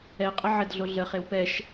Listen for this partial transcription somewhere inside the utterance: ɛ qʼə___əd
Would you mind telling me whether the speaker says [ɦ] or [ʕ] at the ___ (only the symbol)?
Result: ʕ